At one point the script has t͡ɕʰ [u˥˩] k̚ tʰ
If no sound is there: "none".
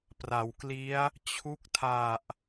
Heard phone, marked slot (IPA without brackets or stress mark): u˦˥